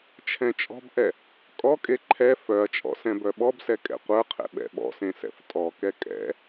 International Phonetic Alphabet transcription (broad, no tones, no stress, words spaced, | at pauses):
t͡ʃʰɛ̃t͡ʃʼɔ̤bʔɛ | kʼɔkʼe ǃʰɛ fœɐ̯t͡ʃʼɔ̰ sɛ̃bœɓɔbsɛ kʼɛ̰qʷə˞qʰɛ̰ ɓɛ̰ɓɔ̰sẽ sɛ̰ftʼɔkɛ kʼɛ̰